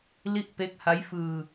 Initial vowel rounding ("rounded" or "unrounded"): unrounded